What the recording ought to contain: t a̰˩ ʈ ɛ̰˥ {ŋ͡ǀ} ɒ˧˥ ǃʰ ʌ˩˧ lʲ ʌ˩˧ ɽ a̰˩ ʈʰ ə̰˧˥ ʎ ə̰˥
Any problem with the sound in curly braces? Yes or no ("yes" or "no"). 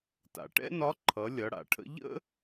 yes